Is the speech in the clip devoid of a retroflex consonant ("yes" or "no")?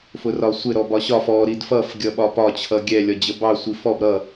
yes